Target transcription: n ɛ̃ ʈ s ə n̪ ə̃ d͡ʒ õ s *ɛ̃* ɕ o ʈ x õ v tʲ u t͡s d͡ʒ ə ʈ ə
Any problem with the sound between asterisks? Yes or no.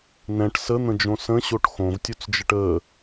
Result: yes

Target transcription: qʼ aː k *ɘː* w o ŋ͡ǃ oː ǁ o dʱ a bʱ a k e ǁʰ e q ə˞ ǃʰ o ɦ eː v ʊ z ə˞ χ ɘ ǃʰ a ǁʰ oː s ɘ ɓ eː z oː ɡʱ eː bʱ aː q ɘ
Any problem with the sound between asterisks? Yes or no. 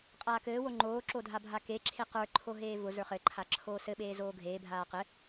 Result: no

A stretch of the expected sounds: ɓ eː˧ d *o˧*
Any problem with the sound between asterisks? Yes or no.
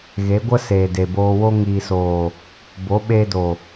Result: yes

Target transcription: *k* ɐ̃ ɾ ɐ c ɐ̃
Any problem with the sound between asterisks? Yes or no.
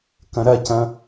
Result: no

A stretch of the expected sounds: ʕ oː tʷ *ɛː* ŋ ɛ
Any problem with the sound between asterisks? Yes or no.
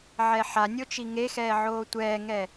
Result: no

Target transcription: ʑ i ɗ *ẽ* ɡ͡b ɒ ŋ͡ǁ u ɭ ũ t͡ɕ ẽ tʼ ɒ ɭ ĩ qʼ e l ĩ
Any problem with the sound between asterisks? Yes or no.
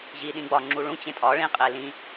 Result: yes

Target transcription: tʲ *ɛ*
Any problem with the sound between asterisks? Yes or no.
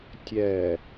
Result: no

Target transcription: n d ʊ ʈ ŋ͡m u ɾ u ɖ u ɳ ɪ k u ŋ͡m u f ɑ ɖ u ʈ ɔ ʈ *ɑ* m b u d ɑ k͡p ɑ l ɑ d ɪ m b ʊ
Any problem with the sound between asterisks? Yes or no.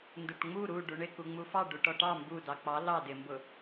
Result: no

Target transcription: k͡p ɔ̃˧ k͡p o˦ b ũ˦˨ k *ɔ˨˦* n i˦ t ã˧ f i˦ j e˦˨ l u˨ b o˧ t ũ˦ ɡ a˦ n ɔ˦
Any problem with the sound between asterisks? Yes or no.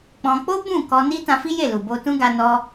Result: yes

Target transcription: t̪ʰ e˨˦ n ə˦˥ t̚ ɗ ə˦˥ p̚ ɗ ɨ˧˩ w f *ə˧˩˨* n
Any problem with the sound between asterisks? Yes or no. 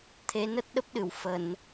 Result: no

